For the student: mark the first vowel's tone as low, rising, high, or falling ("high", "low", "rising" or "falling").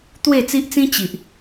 falling